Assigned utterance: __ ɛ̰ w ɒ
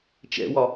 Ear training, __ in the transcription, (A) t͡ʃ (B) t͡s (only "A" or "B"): A